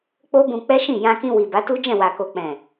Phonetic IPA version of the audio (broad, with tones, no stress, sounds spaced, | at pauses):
k͡p o˦ b ũ˧ k͡p ɛ˦ ʃ ĩ˦˨ j ã˧ k ĩ˧ w i˨ b a˨˦ t u˦ d͡ʒ ɛ̃˦˨ w a˨ k o˨ k͡p ɛ̃˨